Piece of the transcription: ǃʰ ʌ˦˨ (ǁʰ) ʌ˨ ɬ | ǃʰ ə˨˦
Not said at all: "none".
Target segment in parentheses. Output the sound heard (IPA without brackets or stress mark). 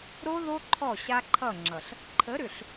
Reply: ŋ͡ǁ